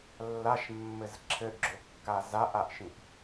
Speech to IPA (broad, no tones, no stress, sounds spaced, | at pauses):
lː a ʃ mː ɘ z ǁʰ ɘ ʔ ɡ͡ǁ o kː a z a ʔ a ʔ ʃ ĩ ʔ